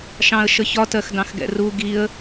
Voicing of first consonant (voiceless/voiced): voiceless